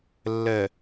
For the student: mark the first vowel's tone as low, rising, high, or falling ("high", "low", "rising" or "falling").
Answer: low